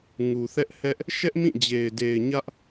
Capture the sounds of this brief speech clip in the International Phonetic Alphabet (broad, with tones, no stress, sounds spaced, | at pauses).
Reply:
ŋ u˨ θ ɛ˦ ʔ h ɛ˦ ʔ | ʃ ɛ˦ ʔ m ĩ˦˨ d͡ʑ e˨ ɪ̯ d e˨ ɪ̯ ɲ ä˦ ʔ